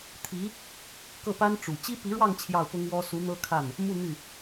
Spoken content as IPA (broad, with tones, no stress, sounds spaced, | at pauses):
t̪ʰ i˧˥ | k ɤ˥˩ p a˥ n ʈ͡ʂ u˨˩ t͡ɕ i˥ p i˧˥ ɻ w ɑ˥˧ ŋ t͡ɕʰ j ɑ˥˩ ʊ̯ p ʊ˥ ŋ w ɔ˥ s u˧˥ n̪ ɤ˥ kʰ a˥˩ n | m u˥˧ n̪ y˥˩